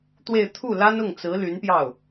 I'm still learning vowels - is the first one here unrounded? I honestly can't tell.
yes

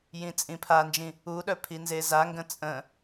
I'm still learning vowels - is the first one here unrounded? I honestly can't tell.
yes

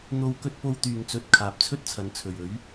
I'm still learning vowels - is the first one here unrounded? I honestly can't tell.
no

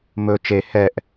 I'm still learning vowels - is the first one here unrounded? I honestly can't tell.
no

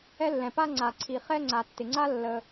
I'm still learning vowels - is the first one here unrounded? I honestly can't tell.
yes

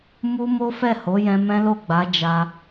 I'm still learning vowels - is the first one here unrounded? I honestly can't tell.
no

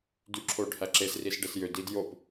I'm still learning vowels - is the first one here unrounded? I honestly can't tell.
no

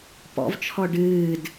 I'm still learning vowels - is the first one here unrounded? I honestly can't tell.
no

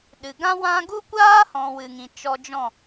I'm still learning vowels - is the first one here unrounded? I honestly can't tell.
yes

